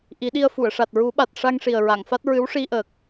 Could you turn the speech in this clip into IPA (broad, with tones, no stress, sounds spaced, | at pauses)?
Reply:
ʔ i˨˩˦ ɗ i˧ ə̯ f u˨˩˨ ə̯ ʂ a˨˩ t̚ ɹ u˨˩˦ ɓ a˨˩ t̚ ʂ a˧ ŋ ʂ i˨˩ ə̯ ɹ a˨˩˨ ŋ f a˦˥ t̚ ɹ ɨ˧˥ w ʂ i˧ ʔ əː˨˩ k̚